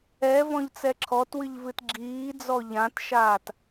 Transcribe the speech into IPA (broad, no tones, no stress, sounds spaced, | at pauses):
ɛ v ɔ̃ ʎ t͡s ɛ ǁʰ ɔ t w ɨ ʎ v ɨ t ɡ͡ǁ iː d͡z ɔ ʎ ã t ʃ aː t